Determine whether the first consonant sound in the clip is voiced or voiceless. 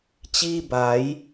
voiceless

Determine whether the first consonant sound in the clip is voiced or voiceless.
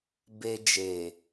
voiced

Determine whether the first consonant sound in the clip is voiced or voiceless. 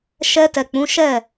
voiceless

